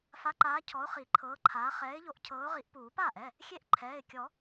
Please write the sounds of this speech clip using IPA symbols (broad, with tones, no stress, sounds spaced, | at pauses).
f a˨˦ ǃ aː˨˦ cʰ ɔ˨˦ ʊ̯ χ i˨˩˦ ǃʰ ɤː˨˦ ǃʰ aː˨˦ χ ɛː˨˦ ɪ̯ ʎ o˨˦ ʔ cʰ ɤː˨˦ ʊ̯ ʁ i˨˦ ʔ p uː˨˩˦ p aː˥˩ ʔ ɛ˩˧˩ | xʲ e˥˩ ʔ ǃʰ ɛː˩˧˩ ɪ̯ kʲ ɔ˨˩˦